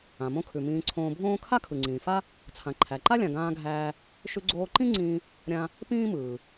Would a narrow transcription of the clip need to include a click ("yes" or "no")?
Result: yes